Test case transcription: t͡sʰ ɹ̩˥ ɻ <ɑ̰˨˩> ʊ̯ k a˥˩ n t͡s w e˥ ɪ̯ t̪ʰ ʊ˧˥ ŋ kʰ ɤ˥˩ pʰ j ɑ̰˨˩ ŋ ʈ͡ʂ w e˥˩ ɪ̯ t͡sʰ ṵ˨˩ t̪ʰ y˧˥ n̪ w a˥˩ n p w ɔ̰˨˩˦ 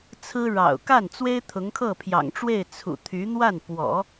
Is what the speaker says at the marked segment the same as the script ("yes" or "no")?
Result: yes